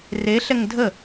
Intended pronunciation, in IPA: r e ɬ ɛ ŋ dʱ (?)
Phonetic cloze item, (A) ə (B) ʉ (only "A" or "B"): A